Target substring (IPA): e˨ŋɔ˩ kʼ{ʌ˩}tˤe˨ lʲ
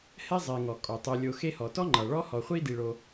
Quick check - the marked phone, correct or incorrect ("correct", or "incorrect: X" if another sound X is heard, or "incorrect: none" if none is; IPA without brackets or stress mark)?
incorrect: ɔ˩